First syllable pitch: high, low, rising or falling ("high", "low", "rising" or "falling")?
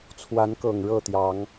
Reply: rising